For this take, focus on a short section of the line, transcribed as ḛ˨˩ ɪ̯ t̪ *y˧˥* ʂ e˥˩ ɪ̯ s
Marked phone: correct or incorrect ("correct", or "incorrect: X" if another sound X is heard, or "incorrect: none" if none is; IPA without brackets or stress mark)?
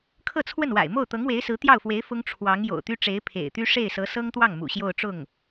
incorrect: y˥